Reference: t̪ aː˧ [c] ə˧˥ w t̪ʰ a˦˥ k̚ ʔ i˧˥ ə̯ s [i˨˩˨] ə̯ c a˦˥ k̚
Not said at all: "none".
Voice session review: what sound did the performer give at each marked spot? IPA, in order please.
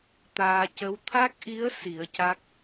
c, i˨˩˦

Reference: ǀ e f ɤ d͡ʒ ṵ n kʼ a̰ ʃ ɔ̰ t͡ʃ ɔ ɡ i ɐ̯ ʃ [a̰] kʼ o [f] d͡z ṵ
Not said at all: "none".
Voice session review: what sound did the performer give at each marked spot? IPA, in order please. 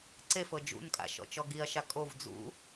a, v

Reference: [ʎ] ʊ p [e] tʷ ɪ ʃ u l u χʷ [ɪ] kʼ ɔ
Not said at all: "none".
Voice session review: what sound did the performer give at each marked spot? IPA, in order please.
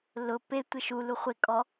l, e, ɪ

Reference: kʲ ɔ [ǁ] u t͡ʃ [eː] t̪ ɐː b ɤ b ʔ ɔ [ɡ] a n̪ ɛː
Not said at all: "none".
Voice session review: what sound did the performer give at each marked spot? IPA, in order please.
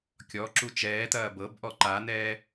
ǁ, ɛː, ǃ

